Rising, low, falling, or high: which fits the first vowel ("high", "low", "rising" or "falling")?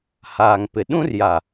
low